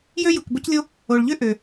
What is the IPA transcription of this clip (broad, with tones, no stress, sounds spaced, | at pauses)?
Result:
j ø˥ j u˩ k b o˥ c lʲ o˥ | o˩ ɭ ʎ ø˥ ʔ ø˩